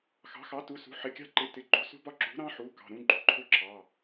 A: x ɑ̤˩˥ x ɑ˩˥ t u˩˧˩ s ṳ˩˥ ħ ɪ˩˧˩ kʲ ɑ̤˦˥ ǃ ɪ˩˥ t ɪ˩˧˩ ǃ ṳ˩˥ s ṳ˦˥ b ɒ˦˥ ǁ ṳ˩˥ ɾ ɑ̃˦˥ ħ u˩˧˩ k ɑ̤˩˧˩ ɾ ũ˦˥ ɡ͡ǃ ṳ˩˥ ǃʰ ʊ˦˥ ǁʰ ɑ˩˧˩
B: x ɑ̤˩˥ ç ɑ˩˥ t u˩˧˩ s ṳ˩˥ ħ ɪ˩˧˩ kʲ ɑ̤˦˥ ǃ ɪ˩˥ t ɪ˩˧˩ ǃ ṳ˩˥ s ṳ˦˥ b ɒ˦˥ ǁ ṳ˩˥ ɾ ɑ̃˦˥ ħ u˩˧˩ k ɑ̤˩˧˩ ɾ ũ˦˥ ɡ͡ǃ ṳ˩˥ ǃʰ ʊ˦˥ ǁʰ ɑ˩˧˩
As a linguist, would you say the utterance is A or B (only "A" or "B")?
A